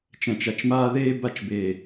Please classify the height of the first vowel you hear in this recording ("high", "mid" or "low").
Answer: low